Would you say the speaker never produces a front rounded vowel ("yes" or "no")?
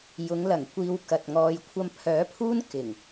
no